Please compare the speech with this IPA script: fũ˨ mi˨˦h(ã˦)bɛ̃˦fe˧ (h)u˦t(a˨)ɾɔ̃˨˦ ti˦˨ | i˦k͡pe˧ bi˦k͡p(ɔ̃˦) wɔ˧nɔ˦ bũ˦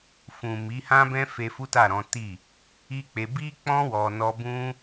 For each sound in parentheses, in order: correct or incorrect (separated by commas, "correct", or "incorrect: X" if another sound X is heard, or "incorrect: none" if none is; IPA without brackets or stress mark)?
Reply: correct, incorrect: f, incorrect: a˦˨, correct